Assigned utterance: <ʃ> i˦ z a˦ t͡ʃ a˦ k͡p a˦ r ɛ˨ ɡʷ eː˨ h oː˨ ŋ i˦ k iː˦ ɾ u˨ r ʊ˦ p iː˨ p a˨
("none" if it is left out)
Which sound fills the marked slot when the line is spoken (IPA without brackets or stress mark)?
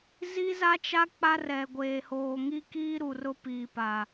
z